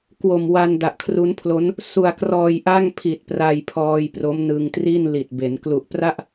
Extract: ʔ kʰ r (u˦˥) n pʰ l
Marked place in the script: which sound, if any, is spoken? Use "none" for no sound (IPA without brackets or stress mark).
u˦˥